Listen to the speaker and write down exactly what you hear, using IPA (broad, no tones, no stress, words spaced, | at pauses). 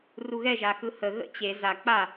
ruɣɛ ʒaxɯhə ɣə̰t͡ɕe za k͡pa